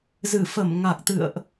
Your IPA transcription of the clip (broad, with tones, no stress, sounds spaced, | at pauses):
z ɨ˧˩ f ə˧˩ m ŋ a˨˩ k̚ t̪ ɨ̰˧˨ ə̯ ʔ